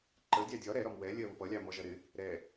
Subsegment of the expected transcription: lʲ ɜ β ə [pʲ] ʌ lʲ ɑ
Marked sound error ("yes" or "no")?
yes